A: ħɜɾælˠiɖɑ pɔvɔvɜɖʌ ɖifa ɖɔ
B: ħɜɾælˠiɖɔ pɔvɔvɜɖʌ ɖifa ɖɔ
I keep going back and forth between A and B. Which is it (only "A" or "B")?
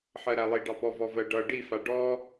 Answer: A